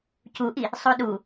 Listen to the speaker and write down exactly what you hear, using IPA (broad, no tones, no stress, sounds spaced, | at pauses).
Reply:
c u ʔ i | sˤ o ɗ u